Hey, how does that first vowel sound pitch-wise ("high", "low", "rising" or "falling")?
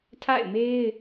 falling